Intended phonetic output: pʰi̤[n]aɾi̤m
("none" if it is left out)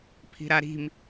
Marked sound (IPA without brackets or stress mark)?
ɾ